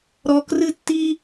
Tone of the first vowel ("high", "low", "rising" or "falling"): high